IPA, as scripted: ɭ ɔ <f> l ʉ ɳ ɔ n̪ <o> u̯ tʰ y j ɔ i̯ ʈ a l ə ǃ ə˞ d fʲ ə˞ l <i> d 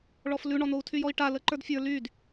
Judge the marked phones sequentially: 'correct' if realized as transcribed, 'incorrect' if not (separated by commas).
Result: correct, correct, incorrect